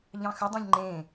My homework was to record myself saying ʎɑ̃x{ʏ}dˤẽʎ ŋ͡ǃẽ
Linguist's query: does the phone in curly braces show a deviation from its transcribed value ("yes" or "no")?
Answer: no